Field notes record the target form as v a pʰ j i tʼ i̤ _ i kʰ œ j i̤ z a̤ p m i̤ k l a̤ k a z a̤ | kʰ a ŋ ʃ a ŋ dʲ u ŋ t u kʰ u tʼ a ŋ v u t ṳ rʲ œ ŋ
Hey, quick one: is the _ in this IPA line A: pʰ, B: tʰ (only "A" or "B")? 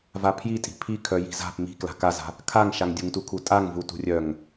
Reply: A